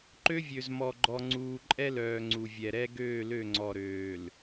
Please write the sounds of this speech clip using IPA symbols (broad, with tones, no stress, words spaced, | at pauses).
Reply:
ǃø˦vʲø˨zmɔ˨ɡ͡ǃɔ˨ ŋ͡ǀuː˨ǃʼɛ˦lœː˨ ŋ͡ǀu˨vʲɛ˨ɾɛ˦ ɡøː˦˨lø˦˨ ŋ͡ǀɔ˨ɾøː˨l